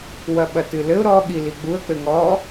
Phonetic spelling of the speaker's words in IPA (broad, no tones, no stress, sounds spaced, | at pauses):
w ɐ ɓ ɐ t ɨ l ɘ ʊ̯ ɾ ɔ ɠ i l i ɡ͡b u ə̯ k͡p ɘ ŋ ɔ